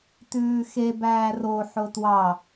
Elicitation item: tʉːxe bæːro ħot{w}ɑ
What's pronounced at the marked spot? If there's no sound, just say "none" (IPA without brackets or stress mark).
w